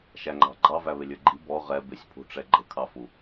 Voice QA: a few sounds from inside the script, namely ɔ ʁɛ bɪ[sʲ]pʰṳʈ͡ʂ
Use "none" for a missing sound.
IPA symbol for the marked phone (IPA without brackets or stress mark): sʲ